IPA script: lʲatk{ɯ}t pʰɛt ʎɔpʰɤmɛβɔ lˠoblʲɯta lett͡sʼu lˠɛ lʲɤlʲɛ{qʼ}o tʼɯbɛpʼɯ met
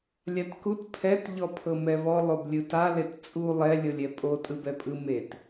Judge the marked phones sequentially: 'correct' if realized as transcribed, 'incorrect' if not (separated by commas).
incorrect, incorrect